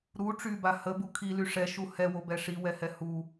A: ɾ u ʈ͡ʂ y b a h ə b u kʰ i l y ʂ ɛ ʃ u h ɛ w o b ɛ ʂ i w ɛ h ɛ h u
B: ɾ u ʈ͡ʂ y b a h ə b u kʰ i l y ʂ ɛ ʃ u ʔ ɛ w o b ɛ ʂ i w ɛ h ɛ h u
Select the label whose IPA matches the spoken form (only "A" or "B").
A